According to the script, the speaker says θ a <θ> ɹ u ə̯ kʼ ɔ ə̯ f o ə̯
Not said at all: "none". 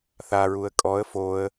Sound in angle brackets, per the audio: none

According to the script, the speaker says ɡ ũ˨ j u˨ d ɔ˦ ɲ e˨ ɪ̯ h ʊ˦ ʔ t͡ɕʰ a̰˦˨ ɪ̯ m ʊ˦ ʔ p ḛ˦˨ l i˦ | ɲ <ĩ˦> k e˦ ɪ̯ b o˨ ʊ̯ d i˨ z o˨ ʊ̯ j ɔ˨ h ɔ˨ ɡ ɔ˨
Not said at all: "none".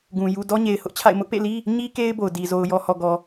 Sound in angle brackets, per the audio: i˦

